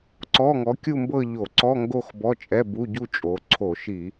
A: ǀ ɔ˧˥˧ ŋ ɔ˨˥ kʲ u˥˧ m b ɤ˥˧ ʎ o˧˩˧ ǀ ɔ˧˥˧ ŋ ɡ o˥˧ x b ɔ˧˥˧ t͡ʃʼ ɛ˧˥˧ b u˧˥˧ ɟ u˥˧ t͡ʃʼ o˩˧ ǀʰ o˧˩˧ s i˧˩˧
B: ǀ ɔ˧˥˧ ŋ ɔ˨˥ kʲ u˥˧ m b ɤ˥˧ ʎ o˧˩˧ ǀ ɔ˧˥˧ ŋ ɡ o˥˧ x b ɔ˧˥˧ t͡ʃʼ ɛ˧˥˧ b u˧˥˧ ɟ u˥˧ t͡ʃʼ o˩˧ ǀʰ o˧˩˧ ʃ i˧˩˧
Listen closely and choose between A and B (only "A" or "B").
B